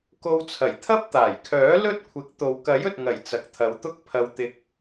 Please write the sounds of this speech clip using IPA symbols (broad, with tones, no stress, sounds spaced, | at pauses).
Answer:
k o˧ w t͡sʰ ɐ˨˩ j t̪ʰ ɐ˥ p̚ t̪ aː˨˩ j kʰ œː˨˥ l ɵ˥ t̚ kʷʰ ɪ˨˥ k̚ t̪ o˨ w k ɐ˨˥ j ɵ˨ t̚ ŋ ɐ˨˩ j t͡s ɐ˨ k̚ t̪ʰ ɐ˨˧ w t̪ ʊ˥ k̚ pʰ ɐ˧ w t̪ ɪ˧ k̚